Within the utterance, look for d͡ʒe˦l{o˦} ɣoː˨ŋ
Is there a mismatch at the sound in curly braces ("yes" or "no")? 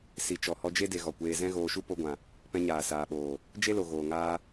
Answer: yes